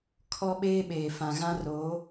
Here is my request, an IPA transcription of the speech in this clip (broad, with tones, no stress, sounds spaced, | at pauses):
kʰ ɔ˦ ɓ eː˦ ɓ eː˨ f ã˨ ɣ ã˦ r oː˨˦